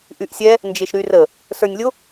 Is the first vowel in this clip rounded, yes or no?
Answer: yes